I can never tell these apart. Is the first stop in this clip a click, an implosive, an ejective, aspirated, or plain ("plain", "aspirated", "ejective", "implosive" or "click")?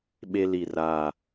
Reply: implosive